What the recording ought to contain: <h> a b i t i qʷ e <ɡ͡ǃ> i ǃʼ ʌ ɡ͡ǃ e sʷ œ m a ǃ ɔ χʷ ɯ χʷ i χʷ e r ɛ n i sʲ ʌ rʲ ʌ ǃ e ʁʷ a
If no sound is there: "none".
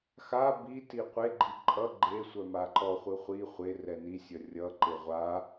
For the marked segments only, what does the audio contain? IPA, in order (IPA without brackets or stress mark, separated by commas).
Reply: x, ɡ͡ǃ